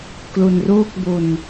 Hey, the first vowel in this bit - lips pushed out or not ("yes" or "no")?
yes